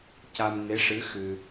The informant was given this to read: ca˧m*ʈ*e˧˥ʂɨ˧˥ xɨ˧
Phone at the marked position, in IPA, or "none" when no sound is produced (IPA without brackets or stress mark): n